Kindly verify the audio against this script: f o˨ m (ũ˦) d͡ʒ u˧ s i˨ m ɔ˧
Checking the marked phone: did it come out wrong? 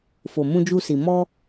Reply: yes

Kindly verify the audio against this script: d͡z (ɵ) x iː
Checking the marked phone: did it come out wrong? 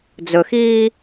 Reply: no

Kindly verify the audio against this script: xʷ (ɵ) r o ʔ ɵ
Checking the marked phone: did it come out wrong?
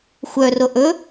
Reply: yes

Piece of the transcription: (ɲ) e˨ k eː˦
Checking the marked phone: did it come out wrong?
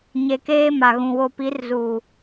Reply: no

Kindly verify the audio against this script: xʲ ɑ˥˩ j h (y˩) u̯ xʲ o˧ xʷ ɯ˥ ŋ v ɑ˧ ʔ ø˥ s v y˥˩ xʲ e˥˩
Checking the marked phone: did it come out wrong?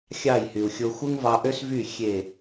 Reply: no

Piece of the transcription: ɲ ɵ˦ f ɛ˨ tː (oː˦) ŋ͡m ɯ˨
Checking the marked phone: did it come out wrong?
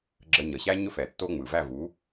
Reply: yes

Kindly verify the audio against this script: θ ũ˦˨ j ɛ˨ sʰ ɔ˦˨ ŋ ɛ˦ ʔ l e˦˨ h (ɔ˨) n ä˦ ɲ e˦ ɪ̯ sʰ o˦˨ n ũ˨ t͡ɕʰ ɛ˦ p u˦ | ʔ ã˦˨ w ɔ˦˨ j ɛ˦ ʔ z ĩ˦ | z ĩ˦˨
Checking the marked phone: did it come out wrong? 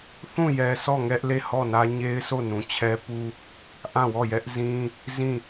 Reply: yes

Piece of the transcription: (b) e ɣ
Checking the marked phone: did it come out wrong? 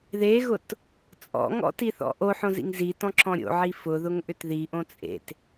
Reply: yes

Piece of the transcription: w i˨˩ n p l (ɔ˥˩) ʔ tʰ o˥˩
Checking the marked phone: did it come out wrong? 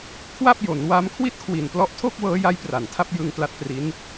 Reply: yes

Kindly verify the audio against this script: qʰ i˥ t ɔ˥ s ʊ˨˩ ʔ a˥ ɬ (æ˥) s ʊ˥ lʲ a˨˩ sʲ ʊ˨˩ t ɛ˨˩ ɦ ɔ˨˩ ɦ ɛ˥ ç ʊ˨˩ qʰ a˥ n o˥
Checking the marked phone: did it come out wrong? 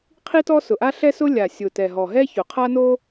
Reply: yes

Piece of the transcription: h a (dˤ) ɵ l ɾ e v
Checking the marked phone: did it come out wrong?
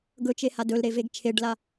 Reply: yes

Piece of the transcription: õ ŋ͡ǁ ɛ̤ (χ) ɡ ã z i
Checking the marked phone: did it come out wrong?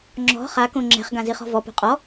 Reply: no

